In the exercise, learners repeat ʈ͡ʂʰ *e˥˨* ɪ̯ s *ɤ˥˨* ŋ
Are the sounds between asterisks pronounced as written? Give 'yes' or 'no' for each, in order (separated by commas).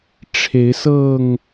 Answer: no, yes